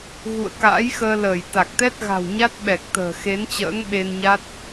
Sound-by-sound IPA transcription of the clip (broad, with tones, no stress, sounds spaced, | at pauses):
ɣ ṵ˧˨ ə̯ k a̰ː˧˥ j x əː˧ l əː˧˩ j t̪ a˨˩ k̚ t̪ ɛ˦˥ t̚ ɣ a̤˨˩ w ɲ a˦˥ t̚ ɓ ɛ˨˩ k̚ t̪ ə̤ː˨˩ x e˨˦ n t͡ɕ ə̰ː˧˥ ŋ ɓ e˧ n ɲ a˦˥ t̚